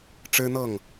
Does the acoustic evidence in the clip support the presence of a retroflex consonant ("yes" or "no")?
yes